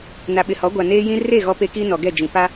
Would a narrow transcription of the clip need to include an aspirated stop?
no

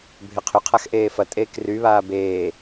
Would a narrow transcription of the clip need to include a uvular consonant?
yes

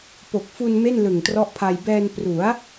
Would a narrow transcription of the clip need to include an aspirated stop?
yes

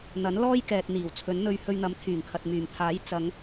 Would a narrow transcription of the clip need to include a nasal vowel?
no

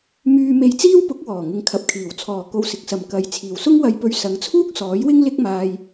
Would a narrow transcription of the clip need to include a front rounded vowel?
yes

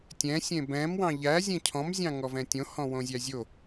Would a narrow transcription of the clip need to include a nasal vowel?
yes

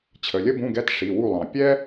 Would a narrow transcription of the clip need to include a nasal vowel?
yes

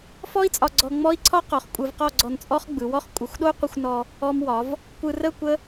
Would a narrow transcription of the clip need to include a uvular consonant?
yes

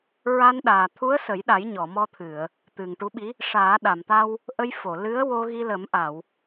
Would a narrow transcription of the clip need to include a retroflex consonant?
yes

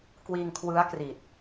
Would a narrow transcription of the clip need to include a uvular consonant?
no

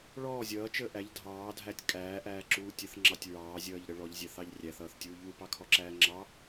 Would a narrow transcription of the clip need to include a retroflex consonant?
yes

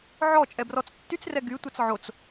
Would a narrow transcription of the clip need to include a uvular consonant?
no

